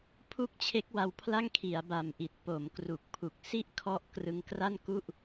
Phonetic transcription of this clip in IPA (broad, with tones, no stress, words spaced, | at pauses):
pʰu˥˩k̚t͡ɕʰe˦˥k̚wa˧wpʰla˥˩ŋ kʰi˩˦a̯ba˨˩mʔi˨˩t̚ po˩˦mkru˨˩k̚pʰu˨˩k̚ si˥˩ʔkʰɔ˦˥ʔ krɯ˧ŋkra˥˩nku˥˩ʔ